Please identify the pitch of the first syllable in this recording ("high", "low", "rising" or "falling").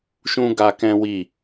high